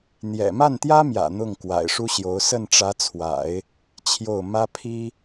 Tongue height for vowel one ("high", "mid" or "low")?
mid